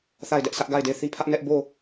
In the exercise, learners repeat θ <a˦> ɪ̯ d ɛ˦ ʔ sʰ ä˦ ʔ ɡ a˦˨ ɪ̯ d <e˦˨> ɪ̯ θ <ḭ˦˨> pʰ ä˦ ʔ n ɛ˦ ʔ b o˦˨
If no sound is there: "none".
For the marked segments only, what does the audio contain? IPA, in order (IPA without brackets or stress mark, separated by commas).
a˦˨, e˦˨, i˦